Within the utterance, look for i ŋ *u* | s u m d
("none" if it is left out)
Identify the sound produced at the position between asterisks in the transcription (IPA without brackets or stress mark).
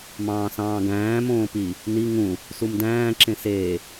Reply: ũ